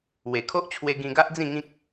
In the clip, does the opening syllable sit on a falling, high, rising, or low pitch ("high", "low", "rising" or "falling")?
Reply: low